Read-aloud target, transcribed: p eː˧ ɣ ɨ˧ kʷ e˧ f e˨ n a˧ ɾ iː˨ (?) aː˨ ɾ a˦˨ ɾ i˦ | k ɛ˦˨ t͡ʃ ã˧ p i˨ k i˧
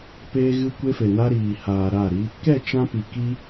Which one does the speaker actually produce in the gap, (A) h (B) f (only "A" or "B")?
A